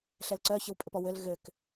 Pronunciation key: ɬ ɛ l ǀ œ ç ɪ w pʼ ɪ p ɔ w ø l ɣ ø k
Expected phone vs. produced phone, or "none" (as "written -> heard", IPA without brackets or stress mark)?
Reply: none